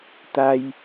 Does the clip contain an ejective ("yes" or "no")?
no